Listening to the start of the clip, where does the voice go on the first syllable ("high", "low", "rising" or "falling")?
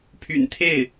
low